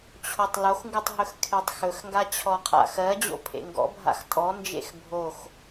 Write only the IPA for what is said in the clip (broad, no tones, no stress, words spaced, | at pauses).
t͡ɕʰotˤloxŋɡutˤ ɦɵxkʰetˤxɵxŋɡa t͡ɕʰɔqʰa̰xɜd͡ʑo̰ pʰḛŋɡɔ̰bʱa̰x tʼɔnd͡ʒḛx bʱox